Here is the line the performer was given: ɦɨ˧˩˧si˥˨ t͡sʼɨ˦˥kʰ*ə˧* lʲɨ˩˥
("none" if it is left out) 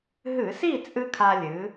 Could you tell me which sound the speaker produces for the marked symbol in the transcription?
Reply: a˧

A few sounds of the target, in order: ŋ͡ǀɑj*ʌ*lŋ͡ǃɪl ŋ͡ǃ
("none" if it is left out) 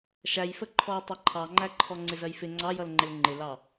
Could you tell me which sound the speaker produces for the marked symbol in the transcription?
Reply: ʌ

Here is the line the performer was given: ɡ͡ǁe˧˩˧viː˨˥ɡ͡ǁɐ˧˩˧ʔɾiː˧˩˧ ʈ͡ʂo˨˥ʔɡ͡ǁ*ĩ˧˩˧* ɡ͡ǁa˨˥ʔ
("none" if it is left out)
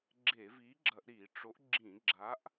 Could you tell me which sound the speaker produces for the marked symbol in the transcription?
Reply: ĩ˧˩˧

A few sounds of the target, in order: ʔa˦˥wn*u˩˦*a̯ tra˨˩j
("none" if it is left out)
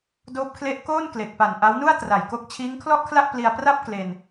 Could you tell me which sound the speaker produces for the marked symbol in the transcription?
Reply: u˥˩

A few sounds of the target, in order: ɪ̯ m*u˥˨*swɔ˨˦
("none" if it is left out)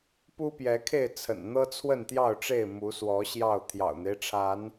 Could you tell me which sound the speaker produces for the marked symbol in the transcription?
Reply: u˨˦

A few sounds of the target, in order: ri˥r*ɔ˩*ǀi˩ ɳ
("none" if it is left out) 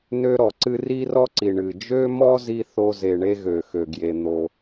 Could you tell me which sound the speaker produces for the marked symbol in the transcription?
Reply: ɔ˥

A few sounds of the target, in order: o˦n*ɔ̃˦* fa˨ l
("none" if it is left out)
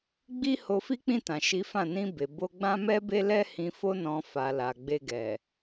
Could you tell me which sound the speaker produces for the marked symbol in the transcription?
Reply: ɔ̃˧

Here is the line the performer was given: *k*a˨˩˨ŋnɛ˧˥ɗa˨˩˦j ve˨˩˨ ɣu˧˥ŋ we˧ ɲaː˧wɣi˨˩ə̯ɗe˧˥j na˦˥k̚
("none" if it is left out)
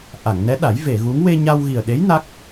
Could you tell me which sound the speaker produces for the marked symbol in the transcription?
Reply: ʔ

